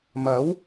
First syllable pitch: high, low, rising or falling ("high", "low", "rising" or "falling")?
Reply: rising